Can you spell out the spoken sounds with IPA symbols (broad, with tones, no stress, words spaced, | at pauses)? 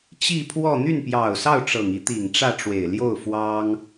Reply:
t͡ɕi˥˧pʰwɔ˥˧ n̪y˥˩npjɑ˨˩ʊ̯sɑ˥˩ʊ̯ ʈ͡ʂɤ˨˩ŋi˧˥ t̪i˨˩ŋʈ͡ʂä˥˩ʈ͡ʂwe˨˩ɪ̯ ljo˥˩ʊ̯ fwɑ˥ŋ